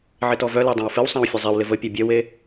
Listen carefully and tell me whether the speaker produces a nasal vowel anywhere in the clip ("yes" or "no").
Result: yes